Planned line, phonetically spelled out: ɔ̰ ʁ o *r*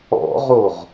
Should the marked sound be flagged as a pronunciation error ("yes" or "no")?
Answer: yes